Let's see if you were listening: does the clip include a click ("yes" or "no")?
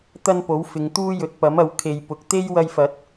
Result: no